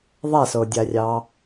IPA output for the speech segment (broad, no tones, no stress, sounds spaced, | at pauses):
ðˤ a s o dʲ a rʲ ɑ